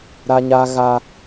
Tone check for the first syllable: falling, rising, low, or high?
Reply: high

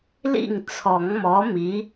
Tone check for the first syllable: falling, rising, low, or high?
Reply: falling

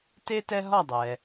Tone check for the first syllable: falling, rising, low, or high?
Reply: high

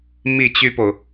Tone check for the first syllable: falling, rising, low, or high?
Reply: falling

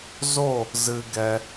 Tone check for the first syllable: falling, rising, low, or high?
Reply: falling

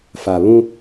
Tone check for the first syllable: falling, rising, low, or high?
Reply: low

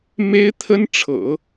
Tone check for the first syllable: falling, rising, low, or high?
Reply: high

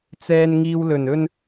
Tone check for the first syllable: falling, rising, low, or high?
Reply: low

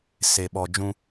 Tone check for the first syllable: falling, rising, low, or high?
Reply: low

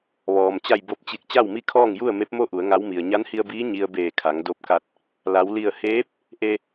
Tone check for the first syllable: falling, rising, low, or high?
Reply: low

